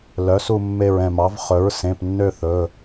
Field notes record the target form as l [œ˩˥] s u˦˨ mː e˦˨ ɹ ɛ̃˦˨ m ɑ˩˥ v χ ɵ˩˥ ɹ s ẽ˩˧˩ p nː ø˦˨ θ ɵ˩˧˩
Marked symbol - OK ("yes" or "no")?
yes